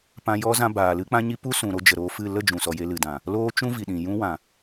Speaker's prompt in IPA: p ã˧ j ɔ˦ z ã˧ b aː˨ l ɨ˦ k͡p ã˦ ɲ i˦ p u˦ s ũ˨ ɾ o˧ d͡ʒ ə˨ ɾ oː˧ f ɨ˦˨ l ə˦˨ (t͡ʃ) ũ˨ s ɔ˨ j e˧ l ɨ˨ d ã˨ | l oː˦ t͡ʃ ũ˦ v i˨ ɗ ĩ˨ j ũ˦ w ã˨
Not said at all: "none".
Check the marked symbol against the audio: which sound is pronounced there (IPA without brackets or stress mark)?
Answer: d͡ʒ